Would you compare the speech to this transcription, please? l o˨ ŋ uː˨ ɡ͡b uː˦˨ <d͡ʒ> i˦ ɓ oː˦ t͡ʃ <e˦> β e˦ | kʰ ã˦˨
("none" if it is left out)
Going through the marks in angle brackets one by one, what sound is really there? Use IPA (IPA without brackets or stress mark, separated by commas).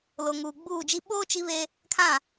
d͡ʒ, i˦